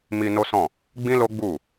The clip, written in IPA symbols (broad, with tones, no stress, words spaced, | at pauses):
mi˧ no˦sɔ̃˦˨ | ɡ͡bĩ˦lo˦ɡ͡bu˦˨